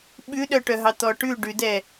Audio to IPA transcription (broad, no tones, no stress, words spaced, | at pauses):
ɓʉɗœʈœɦɑ t̪ɔʈʉ ɖʉdɛ